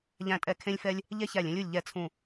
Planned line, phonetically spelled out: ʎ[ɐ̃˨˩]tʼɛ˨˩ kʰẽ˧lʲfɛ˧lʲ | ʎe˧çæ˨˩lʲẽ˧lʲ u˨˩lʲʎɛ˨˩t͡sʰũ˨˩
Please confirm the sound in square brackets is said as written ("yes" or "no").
no